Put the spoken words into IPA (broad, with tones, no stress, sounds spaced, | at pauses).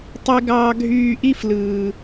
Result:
tˤ i˦ ɡ ɑː˦ ɡʱ yː˦˨ ʔ i˦ f l ɯː˨